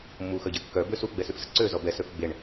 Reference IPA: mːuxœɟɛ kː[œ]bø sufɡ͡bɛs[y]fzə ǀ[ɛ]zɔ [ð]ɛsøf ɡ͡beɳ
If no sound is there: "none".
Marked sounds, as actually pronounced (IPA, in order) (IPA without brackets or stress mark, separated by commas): œ, y, ø, b